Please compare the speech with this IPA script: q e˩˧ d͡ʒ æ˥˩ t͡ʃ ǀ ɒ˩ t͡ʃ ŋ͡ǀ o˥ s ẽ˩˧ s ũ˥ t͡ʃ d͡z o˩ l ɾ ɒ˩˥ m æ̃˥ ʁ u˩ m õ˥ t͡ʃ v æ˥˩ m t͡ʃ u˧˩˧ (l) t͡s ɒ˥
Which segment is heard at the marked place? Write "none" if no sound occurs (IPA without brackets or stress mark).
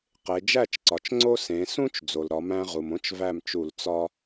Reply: l